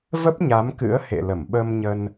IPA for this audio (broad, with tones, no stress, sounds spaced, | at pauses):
v ə˦˥ p̚ ɲ a˨˦ m k ɨ̰˧˥ ə̯ h ḛ˧˨ l ə˧˩ m ɓ ə˧ m ɲ ə˧ n